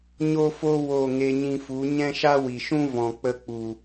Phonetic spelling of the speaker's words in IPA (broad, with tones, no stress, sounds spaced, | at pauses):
ɲ o˦ f o˦ w o˦˨ ŋ e˧ ɲ ĩ˧ f u˨˦ ɲ ɛ̃˦ ʃ a˦ w i˨ ʃ ũ˦ v ɔ̃˨ k͡p ə˧ k͡p u˨